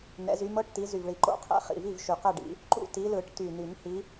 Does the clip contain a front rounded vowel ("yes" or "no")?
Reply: yes